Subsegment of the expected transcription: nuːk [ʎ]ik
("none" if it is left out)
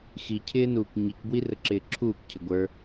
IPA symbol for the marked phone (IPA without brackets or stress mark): ɲ